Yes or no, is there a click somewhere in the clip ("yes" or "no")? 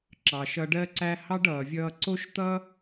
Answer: yes